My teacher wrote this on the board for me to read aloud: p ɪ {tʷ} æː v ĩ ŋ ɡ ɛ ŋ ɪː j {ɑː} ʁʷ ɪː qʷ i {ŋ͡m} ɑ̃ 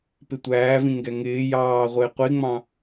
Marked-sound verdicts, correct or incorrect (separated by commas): correct, correct, correct